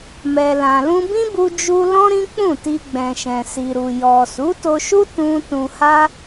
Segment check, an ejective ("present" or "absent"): absent